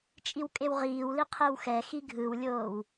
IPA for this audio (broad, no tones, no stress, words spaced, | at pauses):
t͡ʃʼiwkʼewʁiːwli qʰewxɛxi ɡʱɯwlʲoːw